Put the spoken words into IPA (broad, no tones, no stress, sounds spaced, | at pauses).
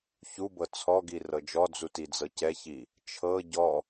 ç u b ɤ t͡sʰ ɔ ɡ i r ɤ d͡ʒ ɔ d͡z u t i d͡z ɤ c ɛ ç i | t͡ʃʰ ɤ ɟ ɔ